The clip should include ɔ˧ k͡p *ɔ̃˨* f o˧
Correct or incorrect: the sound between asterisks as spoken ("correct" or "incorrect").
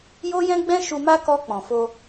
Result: correct